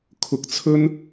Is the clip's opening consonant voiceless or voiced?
voiceless